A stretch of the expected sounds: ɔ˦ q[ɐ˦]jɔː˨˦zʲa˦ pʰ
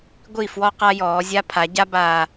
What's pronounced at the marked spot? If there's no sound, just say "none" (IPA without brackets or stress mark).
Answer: a˦